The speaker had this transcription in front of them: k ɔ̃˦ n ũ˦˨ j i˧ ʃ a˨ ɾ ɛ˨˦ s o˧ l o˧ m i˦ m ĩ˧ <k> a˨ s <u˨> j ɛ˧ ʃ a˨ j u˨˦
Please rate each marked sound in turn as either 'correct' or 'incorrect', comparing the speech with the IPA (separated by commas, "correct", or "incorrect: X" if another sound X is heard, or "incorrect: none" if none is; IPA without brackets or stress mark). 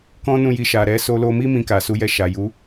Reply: correct, incorrect: u˨˦